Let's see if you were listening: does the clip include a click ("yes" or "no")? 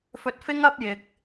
no